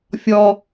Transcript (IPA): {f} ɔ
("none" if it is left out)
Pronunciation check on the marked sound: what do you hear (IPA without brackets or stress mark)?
fʲ